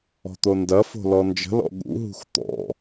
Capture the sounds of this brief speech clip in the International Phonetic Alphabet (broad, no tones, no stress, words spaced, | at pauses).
ɔ̤t̪ondɐfo̤ lɔnd͡ʒə̤lɔ̰ ɠṵɦṳx t̪ɔ̰